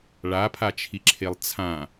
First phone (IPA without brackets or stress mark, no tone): ɭ